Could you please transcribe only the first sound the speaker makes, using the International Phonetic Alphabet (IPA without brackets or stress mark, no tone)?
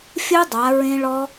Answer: fʲ